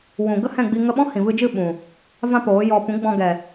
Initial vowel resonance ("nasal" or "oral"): nasal